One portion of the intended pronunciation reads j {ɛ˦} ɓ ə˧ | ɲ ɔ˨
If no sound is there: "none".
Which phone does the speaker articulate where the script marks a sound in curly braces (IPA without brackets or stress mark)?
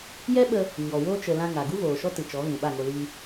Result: ɛ˦